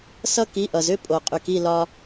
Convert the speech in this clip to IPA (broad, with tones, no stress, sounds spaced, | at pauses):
s ʌ˦ k i˨˦ ʔ ʌ˨ z ʏ˦ pʼ o˨ qʼ y˨ k i˦˨ l ɒ˧